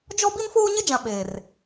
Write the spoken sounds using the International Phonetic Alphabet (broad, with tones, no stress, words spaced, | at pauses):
d͡ʒɔ˦ bi˦nfoː˦ɲɪ˦d͡ʒã˨ ɓe˨r